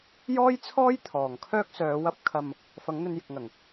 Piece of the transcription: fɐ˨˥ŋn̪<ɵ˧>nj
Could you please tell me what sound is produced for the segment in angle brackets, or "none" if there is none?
ɵ˧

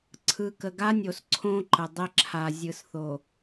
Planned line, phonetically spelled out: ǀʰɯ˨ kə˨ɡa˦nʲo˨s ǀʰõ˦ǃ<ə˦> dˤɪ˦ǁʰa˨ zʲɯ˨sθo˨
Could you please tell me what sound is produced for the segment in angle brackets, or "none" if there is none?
ə˨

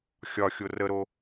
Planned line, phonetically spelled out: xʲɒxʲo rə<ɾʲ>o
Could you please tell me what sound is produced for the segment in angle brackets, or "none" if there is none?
ɾ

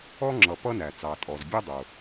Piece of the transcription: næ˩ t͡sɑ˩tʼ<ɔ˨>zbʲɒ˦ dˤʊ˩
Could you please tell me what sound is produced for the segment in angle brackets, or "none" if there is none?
ɔ˩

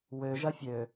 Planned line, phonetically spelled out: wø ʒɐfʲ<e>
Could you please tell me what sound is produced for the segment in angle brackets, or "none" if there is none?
ø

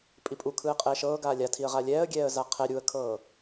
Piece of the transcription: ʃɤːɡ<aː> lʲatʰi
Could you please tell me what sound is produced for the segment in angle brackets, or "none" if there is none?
aː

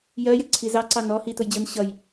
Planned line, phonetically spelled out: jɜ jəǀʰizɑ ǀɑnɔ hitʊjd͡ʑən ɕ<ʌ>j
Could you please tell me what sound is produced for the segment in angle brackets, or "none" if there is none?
ʌ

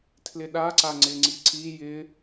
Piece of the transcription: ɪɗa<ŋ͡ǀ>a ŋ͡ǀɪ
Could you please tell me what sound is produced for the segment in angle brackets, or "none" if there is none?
ǀ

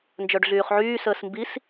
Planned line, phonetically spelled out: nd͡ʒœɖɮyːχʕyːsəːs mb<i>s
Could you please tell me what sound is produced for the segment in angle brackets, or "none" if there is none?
i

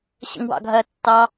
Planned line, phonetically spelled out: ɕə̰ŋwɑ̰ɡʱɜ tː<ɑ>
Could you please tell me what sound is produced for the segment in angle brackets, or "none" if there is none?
ɑ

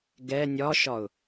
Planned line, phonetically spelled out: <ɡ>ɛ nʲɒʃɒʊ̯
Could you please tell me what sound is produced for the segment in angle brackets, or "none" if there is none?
ɡ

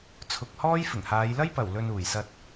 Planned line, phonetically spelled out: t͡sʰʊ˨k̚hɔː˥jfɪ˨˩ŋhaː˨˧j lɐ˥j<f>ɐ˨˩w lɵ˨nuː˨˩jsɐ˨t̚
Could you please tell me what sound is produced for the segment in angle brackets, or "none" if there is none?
p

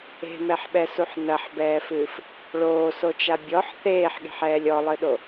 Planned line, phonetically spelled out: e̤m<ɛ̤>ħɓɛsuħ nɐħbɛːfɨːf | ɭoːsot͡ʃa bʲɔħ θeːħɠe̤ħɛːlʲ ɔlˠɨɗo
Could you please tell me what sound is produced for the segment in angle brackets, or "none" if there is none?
ɛ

